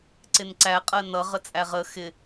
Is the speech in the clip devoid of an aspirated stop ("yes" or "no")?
yes